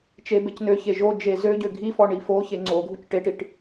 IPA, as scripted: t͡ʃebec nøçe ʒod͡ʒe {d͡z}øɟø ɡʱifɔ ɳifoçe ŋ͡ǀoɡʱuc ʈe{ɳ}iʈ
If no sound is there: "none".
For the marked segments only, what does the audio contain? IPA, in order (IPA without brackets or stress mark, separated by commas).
z, ʈ